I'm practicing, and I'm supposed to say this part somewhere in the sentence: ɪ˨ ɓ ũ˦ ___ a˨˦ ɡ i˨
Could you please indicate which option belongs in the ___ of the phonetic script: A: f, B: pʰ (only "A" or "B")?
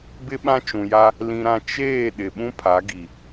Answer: B